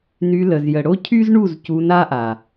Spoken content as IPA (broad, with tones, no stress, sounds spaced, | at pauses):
n y˧ l ə˨ z j ə˨ ɽ o˦ cʰ y˦ z ɳ u˦˨ z c u˧ n a˦ ʔ a˨